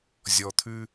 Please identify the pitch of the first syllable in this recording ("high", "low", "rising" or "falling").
low